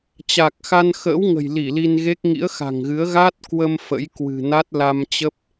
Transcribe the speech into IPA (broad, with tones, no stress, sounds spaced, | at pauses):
t͡ɕ a˨˩ k̚ x a˧ n x ə̰ː˧˥ w ŋ ə̤˨˩ j l i˧˩ l i˧ n ɣ e˦˥ k̚ ŋ ḭ˧˥ ə̯ x a̤˨˩ ŋ ɣ ɨ˨˦ ə̯ ɣ a˦˥ t̚ k w ə˧ m f ə̰˧˥ j k w ɨ̤˨˩ n a˦˥ t̚ l a˧ m t͡ɕ ə˦˥ p̚